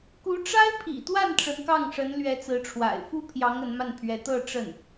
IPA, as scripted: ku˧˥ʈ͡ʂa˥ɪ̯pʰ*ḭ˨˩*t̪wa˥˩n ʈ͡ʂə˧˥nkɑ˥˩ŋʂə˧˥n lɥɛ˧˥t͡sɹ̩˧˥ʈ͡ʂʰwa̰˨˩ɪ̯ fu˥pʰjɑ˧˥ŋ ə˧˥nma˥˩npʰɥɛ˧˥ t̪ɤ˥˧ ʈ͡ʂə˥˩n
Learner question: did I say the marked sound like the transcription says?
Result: yes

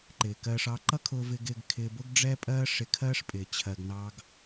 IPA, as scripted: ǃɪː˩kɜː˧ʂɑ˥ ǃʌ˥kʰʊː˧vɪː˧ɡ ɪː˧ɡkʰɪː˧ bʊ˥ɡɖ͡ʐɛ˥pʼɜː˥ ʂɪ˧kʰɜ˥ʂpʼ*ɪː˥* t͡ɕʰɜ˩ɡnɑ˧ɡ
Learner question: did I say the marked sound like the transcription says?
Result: no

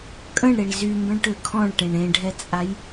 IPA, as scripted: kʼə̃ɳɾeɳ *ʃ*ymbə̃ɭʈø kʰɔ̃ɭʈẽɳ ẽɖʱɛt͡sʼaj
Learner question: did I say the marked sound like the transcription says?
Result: no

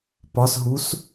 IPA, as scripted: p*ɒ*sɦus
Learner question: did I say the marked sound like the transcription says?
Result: yes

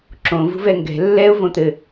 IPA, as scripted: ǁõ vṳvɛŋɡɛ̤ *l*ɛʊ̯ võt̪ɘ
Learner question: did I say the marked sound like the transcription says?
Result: no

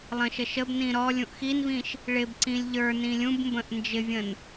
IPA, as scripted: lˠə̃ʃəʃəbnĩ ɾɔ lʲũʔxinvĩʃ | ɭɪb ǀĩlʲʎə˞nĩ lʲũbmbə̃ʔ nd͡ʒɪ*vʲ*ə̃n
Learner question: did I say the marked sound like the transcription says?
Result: yes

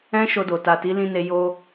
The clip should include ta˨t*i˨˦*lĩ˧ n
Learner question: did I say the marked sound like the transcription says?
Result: yes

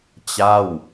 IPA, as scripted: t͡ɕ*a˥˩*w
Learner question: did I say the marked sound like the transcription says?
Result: yes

